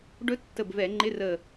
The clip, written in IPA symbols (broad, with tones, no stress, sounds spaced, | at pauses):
ɖ ɵ˦˥ tː ə˧˩ b v ɛ˧˩˧ ŋ͡ǃ ɪ˧˥˧ r ə˧˩